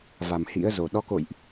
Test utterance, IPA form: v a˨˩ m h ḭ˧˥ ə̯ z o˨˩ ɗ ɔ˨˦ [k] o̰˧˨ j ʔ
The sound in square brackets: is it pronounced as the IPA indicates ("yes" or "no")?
yes